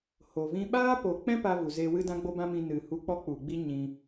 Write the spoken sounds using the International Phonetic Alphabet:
ho˨vĩ˦ ɓaː˦po˨k͡pɛ̃˦ pa˦vu˨ zeː˧wɨ˦dã˦ ɡ͡bo˦bã˦mĩ˧ nɨ˨hu˧k͡pɔ˦ k͡pu˨ɡ͡bi˦ ɲĩ˧

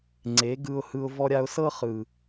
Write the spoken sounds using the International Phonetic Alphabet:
ŋ͡ǀe˨˦ɡɯ˧ʊ̯hɯ˧ʊ̯ vɔ˧ɾʲa˧ʊ̯sɤ˦ χɯ˨

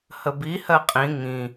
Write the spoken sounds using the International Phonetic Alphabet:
həbi hɜqʼĩ ŋĩ

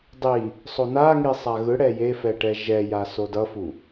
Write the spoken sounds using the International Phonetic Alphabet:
dˤi | sˤonaŋi sˤaɣɯɽɛ jefɛ ʈɛʒɛja sodʌfu

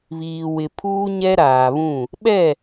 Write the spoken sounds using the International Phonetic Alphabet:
βiː˨wɪ˨ pʰuː˦ɲɛ˦ɾaː˨βũ˦˨ | ɓɛ˦˨

